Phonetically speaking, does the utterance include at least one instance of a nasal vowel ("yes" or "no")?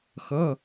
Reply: no